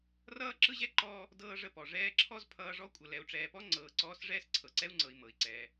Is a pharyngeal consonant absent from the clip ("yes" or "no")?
yes